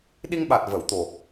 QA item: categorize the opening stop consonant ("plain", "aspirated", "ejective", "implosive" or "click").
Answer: implosive